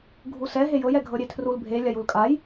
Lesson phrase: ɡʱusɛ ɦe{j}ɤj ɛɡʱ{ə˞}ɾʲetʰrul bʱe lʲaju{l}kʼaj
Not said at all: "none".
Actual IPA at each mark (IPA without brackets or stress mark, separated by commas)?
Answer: j, ɤ, l